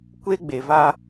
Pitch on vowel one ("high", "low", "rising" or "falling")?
high